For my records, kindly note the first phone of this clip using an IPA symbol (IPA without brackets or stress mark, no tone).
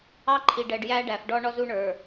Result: ɑ